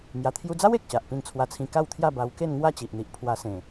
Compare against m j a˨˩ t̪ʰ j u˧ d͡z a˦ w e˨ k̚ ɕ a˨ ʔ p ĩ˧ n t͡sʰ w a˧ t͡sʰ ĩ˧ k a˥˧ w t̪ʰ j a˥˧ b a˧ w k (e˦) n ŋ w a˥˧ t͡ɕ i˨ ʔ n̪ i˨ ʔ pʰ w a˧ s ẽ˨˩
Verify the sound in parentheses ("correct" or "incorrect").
incorrect